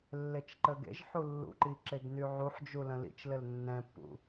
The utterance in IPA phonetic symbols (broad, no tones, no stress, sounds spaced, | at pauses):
lː e t͡ʃ ǃ ə ɡ ḛ ʒ ħ u lː ṵ ǃ i ǁ e ɡ n y ʕ u ħ d͡ʒ u l ə̃ l ḭ t͡ʃ l ɘ l nː ɛ̃ pː ṵ